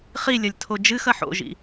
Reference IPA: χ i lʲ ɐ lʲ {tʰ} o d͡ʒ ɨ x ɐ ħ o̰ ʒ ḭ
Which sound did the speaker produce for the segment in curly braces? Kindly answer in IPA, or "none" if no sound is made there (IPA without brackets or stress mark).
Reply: tʰ